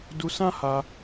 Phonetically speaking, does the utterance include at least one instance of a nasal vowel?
yes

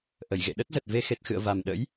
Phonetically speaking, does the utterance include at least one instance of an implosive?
yes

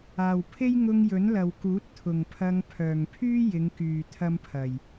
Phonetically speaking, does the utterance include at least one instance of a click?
no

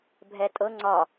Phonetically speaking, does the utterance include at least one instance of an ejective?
yes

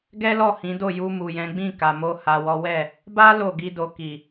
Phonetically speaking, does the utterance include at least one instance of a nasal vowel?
yes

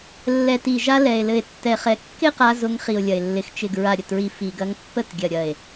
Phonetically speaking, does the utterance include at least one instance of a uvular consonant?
yes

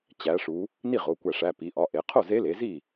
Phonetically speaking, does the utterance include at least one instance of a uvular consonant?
yes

